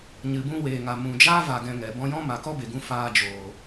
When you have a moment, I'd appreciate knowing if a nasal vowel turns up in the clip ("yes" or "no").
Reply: yes